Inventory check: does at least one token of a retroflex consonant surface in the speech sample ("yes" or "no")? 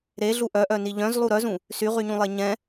no